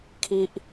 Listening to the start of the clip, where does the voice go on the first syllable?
high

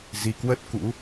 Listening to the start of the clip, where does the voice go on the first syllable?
rising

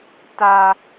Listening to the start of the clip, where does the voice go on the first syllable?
high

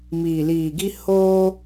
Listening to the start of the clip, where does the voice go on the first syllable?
low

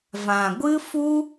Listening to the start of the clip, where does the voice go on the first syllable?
low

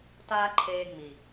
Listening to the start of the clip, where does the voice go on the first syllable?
high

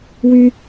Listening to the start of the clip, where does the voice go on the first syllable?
high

